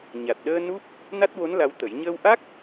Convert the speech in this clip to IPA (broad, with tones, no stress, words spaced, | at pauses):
ɲa˨˩t̚ɗəː˧ nu˦˥p̚ | na˦˥t̚wo˧˥n la˧˥wt̪ə˨˩˦j ɲəː˧wʔa˦˥k̚